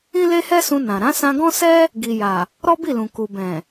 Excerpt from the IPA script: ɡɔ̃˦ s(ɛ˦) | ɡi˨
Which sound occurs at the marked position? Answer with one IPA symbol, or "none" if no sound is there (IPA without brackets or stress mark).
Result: ɛ˦